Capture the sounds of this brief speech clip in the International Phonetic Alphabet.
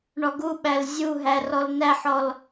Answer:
ɳɔɡuɓæl zʲuɦæ rɔlnæħɔl

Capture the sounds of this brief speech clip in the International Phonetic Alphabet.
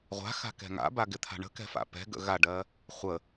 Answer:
ʁʷa̤xa̤kɛ̤ ŋa̰baɡɪt̪ʰa̤ ɳə̤kɛ̤fa̰ pɛ̤ɡə̰ ɣaɖɜ | χʷə

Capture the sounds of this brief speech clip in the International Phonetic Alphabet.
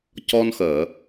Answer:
cɔ˧nxəː˨˩˨

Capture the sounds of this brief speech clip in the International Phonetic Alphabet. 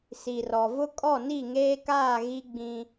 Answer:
si˨rɔ˨vʊ˦ kʼɔ˦˨ni˦˨ŋeː˦kaː˦˨ ɣi˦ɡ͡bĩ˦

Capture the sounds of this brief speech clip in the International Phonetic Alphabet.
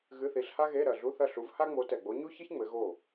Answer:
ɣɨ˧˥˧θi˨˥ɬha˥ɣe˧˥˧ ɾɐ˨˩ ɮu˧˥˧θɐ˥˩ɬu˨˥v ha˥ŋ͡mo˨˥tɛ˨˩ɡ͡bo˨˥ ɲu˥çɘ˥ç ŋ͡mɘ˨˥ɣo˥˩

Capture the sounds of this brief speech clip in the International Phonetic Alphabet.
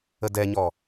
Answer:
ədɛɲɔ

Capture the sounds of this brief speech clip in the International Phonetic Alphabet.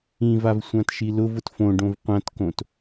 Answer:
ĩvav sʷãtʃilʊv ʊtfõɖõv qʷãtkõt

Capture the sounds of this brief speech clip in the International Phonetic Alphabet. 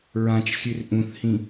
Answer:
ɹãt͡ʃxʲʉr ʔũθhĩ

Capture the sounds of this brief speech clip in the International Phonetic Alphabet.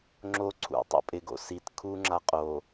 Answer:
ŋ͡ǁo ǀʰṵ tˤo̰pʼɪɡo̰ sit kʰuŋ͡ǁa qʼo

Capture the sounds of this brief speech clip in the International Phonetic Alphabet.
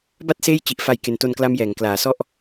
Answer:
ba˥˩t̚ seː˥˩jt͡ɕi˨˩ʔ fa˨˩j ke˨˩nto˧nkla˦˥m jɛː˩˦ŋklaː˩˦sɔ˥˩ʔ

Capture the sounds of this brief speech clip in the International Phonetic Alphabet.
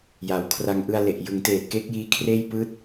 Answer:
ja˩˦wkʰra˧ŋ ʔɯ˧a̯le˨˩ʔjɯ˩˦ŋteː˨˩t̚ ke˦˥k̚jiː˦˥kʰreː˥˩j pɯː˥˩t̚

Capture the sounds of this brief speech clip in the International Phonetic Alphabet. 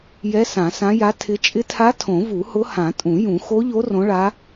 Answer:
jɛ˧˥ sã˨˩˦sã˧˥ja˧˥ tʰɪ˧˥ t͡ʃʼɪ˧˥tʰa˧˥ tʰõ˨˩˦vu˨˩˦hʊ˧˥hã˨˩˦ tʼũ˨˩˦jũ˨˩˦ xo˧˥ʎo˧˥ rõ˧˥ɭa˧˥

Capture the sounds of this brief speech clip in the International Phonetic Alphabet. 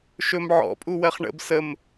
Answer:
ʃɵm ʕɔ̰pʼu wɜχɳə̰b səm

